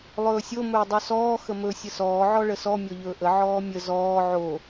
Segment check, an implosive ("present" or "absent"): absent